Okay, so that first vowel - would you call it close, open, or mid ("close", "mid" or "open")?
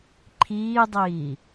close